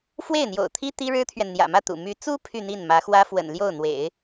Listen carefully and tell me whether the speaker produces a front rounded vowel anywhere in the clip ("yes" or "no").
yes